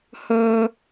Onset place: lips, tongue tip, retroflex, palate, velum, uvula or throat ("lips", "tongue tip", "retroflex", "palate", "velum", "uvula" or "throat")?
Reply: throat